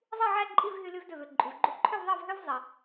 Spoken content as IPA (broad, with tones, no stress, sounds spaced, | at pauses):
zˤ i˥˧ ʕ æ˥˧ ǃʼ i˥˧ v ɦ y˧ l y˧ v d ø˧˩ v ø˧˩ ǃʼ y˩ v ɡ͡ǃ u˧˩ ǃʰ ø˥˧ v ðˤ ɑ˥˧ v ɦ ø˥ v zˤ i˩